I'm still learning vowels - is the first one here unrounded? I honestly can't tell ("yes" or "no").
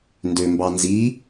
no